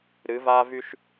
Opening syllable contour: rising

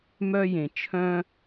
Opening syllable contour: high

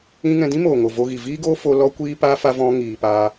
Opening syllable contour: high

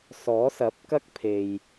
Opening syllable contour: rising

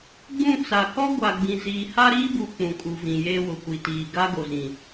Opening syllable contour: falling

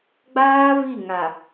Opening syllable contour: high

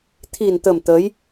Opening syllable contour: low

